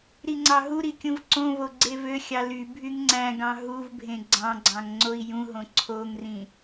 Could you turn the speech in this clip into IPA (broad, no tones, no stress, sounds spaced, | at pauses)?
ɾ i ŋ͡ǀ ɑ ɦ u ɾ i kʲ ũ v ǀ õ v o ɡ͡ǀ e v ø xʲ ɑ l y bʱ y ŋ ŋ͡ǀ æ̃ ɡ ɑ̃ ɦ u v bʱ ẽ ɡ͡ǀ ɑ̃ ɡ͡ǀ ɑ̃ ŋ ŋ͡ǀ o i̯ j ũ ɦ õ ǀʰ o ŋ r ĩ